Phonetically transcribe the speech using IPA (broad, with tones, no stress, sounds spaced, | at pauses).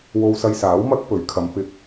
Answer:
w o˧ w s ɐ˧ j s aː˨˥ w m ɐ˥ k̚ p ɵ˨˥ ɥ kʰ ɐ˨˧ m p ɪ˨ k̚